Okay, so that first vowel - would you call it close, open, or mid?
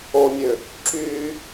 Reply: mid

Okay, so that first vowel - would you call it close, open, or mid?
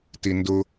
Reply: close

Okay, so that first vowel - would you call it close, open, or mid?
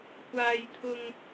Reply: open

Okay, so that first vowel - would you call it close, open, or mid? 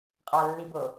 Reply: open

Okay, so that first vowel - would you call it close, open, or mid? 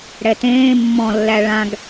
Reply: mid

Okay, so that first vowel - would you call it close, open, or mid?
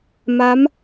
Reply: open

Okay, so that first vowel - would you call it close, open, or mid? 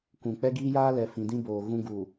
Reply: close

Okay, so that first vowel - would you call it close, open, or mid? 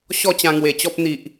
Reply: mid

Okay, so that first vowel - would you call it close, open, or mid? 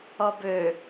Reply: mid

